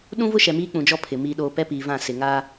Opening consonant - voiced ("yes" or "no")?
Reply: yes